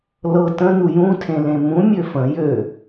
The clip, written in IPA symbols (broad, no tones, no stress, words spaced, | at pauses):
lɤ tə̃ nujũtʰẽ lẽmũ mʲøfə̃ jø